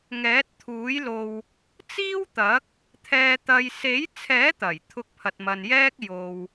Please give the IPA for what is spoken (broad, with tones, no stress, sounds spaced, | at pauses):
ŋ ɛː˨˥ t̚ t̪ʰ uː˨˥ j l o˧ w | t͡s iː˥ w t̪ ɐ˨˥ k̚ | t̪ʰ ɛː˨ t̪ ɐ˨ j s e˨˥ j t͡sʰ ɛː˨˥ t̪ ɐ˨˩ j t̪ʰ ʊ˧ k̚ pʰ ɐ˨ t̚ m ɐ˨ n j ɛː˥ k̚ j o˨ w